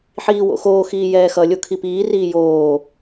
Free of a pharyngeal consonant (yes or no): no